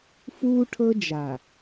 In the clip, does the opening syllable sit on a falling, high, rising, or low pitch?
high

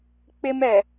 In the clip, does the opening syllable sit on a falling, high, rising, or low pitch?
high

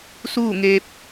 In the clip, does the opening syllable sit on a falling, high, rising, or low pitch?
falling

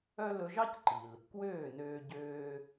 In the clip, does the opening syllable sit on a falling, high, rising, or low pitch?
high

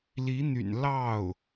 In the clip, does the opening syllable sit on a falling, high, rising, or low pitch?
rising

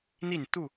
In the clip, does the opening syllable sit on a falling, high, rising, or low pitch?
falling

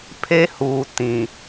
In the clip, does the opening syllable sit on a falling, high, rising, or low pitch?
high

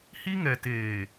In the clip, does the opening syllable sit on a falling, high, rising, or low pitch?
high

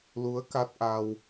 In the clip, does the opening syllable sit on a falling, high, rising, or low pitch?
rising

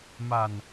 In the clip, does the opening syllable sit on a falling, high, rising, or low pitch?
low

